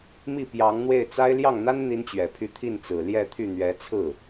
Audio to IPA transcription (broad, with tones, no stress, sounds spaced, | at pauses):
m i˥˩ p j ɑ˧˥ ŋ n̪ w e˥˩ ɪ̯ t͡s a˥ ɪ̯ l j ɑ˥˩ ŋ n̪ a˥ n n̪ i˥ n t͡ɕ ɥ ɛ˨˩ pʰ y˥˧ t̪ʰ i˥˩ n t͡s ɹ̩˨˩ l j ɛ˥˧ t̪ʰ y˥˩ n̪ ɥ ɛ˧˥ t͡sʰ ɹ̩˥˩